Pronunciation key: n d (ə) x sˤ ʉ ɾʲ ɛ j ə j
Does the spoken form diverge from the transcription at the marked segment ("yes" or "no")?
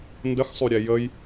no